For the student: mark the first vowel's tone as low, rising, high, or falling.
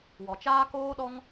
low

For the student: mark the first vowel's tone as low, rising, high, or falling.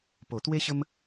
low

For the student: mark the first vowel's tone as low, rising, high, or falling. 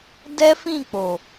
high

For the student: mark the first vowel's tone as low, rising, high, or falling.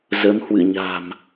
rising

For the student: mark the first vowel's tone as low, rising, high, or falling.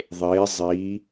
rising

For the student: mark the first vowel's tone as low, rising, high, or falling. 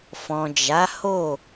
low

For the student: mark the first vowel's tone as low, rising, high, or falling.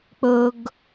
low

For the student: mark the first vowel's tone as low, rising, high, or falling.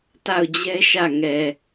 falling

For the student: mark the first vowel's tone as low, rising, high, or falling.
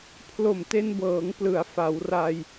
low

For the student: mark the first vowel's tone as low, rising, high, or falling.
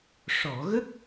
low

